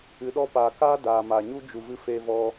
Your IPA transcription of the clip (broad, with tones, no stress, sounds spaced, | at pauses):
ɨ˨˦ ɗ ɔ˧ p aː˨ k aː˦ d aː˨ m aː˨ ɲ u˦ d͡ʒ u˨ v ɨ˧ f eː˧ v ɔ˧